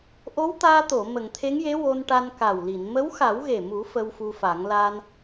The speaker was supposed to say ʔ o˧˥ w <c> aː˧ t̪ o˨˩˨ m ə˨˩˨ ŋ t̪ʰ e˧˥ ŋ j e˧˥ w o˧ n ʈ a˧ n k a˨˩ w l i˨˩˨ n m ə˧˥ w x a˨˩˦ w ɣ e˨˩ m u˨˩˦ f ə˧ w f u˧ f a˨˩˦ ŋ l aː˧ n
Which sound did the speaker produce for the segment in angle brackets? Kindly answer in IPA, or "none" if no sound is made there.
t̪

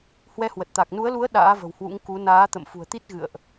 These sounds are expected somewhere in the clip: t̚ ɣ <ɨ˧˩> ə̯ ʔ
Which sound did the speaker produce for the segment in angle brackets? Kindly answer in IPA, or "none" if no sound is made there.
ɨ̰˧˨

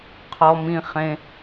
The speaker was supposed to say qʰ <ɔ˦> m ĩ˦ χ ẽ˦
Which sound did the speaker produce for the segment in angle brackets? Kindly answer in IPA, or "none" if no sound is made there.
ɔ˦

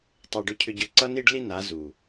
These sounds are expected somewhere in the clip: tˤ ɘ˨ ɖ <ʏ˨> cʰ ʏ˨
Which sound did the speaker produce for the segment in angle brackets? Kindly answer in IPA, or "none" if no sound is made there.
ʏ˨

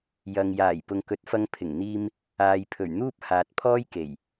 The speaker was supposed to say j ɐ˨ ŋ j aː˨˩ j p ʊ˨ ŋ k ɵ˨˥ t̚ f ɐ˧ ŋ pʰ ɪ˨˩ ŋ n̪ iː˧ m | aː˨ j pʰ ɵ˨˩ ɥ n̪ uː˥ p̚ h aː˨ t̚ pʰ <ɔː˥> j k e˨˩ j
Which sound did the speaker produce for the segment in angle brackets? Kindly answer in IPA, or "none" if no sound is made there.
ɔː˥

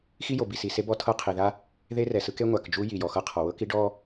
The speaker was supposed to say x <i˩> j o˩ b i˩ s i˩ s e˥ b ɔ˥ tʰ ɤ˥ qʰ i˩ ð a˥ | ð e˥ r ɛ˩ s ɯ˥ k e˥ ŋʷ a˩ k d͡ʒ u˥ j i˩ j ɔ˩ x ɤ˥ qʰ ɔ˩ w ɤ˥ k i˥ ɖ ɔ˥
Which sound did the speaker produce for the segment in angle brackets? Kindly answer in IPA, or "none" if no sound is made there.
i˥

